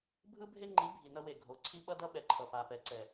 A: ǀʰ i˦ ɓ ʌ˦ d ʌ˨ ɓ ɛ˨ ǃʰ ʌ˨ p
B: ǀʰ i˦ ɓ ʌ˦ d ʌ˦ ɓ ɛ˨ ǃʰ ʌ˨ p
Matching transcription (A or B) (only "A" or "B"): B